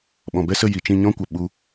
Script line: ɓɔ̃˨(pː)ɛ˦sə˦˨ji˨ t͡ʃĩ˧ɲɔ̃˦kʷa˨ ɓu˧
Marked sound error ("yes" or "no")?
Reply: yes